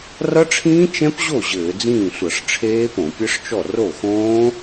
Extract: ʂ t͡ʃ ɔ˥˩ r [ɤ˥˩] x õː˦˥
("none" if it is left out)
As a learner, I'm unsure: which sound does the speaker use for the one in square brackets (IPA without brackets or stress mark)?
o˥˩